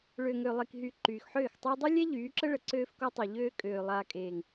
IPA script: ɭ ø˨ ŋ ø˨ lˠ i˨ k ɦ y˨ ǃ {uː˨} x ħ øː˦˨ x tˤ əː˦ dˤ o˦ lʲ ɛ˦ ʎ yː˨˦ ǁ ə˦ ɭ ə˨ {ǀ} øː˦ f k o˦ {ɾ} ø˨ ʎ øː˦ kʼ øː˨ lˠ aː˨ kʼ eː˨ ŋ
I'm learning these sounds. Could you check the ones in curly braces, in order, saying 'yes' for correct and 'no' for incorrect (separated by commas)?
no, yes, no